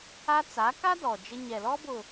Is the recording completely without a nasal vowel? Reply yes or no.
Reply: yes